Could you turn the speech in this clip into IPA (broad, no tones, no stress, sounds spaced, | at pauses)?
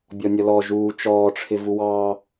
bʲ ɔ nʲ ʌ l ɔ ʒ uː t͡ʃ ɔː ʈ͡ʂʰ ɪ v u w ɑː